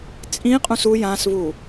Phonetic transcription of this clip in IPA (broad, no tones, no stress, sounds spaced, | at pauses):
t͡sʼ ĩ qʼ ũ s u j ã s v u